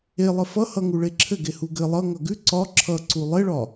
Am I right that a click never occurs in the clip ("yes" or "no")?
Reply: no